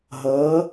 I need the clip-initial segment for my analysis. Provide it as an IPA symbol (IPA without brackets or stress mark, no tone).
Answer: ɦ